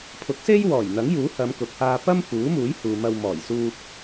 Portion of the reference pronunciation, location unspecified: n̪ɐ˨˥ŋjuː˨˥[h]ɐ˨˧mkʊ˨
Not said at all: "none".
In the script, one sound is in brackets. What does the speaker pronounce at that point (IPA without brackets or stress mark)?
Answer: h